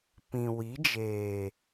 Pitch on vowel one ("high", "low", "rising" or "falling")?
low